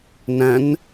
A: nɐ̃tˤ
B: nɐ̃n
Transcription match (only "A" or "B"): B